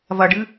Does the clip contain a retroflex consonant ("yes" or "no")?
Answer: yes